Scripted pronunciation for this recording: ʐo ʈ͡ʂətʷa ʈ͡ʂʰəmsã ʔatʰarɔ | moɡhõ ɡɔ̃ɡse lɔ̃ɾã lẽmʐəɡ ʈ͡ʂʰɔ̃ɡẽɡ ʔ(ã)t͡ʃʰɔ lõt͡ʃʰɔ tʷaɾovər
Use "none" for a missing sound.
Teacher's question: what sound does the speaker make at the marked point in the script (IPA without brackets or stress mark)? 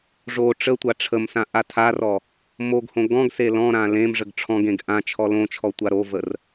ã